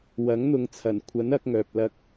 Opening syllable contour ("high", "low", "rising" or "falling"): rising